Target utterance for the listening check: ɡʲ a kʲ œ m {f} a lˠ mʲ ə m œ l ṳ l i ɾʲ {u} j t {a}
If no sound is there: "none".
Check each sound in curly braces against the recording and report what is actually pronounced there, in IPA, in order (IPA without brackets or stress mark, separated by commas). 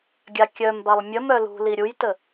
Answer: b, u, ə